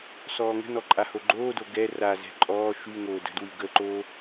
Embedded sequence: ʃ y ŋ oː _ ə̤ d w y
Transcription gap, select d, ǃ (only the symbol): d